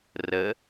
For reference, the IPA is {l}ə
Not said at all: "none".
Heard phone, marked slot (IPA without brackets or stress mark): r